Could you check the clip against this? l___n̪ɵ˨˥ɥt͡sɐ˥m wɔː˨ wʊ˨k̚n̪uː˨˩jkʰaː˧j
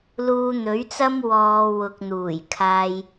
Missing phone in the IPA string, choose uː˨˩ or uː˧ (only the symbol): uː˧